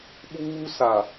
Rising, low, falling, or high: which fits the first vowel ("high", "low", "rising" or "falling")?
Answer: high